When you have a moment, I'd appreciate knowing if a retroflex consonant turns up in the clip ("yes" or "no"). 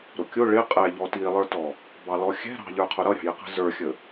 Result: yes